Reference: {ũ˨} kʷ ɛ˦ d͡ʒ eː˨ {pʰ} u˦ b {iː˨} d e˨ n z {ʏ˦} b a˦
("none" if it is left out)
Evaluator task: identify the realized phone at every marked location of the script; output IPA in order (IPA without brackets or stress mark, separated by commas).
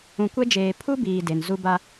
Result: ũ˨, pʰ, iː˨, u˦